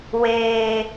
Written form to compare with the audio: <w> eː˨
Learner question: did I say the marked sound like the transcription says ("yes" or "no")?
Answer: yes